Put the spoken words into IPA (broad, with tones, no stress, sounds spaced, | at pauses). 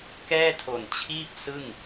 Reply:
k ɛː˥˩ tʰ o˨˩ n t͡ɕʰ iː˥˩ p̚ s ɯ˥˩ ŋ